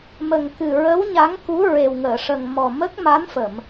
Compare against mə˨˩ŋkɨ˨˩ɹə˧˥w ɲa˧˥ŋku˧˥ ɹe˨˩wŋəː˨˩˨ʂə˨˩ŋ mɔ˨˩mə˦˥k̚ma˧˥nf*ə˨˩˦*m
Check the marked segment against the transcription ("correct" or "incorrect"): incorrect